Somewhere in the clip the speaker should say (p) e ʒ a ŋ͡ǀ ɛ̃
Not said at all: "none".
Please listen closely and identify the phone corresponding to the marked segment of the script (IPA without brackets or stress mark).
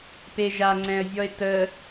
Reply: p